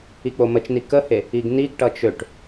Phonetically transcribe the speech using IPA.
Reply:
ik͡pomət͡ʃni kəhe | iɡniɡʈʌ t͡ʃøʈ

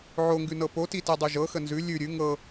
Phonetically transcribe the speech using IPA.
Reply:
ʕoŋɡʉnɤ poti tɛdˤʉʒɤxə nzʉ lʲʉ ɾʲʉ ŋɤ

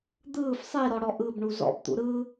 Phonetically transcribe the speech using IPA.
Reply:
d̪ɯːf sˤiɾɔɽɔ ʔɯbɳu zɔ̰bt̪ṵ ɾɯ

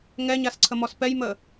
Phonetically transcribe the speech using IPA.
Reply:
ŋɛɲasǀʰəmɔs pɛjmə

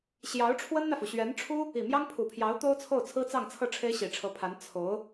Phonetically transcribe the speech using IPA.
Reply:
ɕjɑ˧˥ʊ̯ʈ͡ʂʰwə˥nn̪ä˨fu˩ ɕɥɛ˧˥nʈ͡ʂʰu˥ | i˨˩mjɑ˥ŋpʰu˨˩pʰjɑ˧˥ʊ̯ t̪o˥ʊ̯t͡sʰo˥˩ʊ̯ t͡sʰɹ̩˥t͡sɑ˥˧ŋt͡sʰɤ˥˩ ʈ͡ʂʰe˥ɪ̯ɕi˨˩ʈ͡ʂʰɤ˧˥ pʰa˧˥n t͡sʰo˧˥ʊ̯

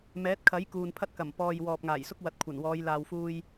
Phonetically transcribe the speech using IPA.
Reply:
mɛː˨˥t̚kʰɐ˨˥j kuː˨npʰɐ˥t̚kɐ˨˩m pɔː˨j wɔː˨p̚ŋaː˨˩jsʊ˥k̚ wɐ˨˥t̚kʷʰɐ˨˩nwɔː˨˧j laː˧wfuː˥j

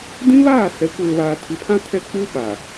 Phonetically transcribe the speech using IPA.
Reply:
dĩ˦βaː˦˨ sɛ˨˦kʷeː˨βaː˨ tʰi˨pʰã˦tʰɛ˦˨ k͡pu˦ɓa˨

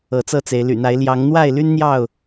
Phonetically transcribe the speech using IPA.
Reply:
ɤ˨˦t͡sɤ˥˨t͡se˨˦ɪ̯ ly̰˨˩n̪a˨˦ɪ̯ ljɑ˨˦ŋn̪wa˥˨ɪ̯ly˦n n̪jɑ˥˨ʊ̯

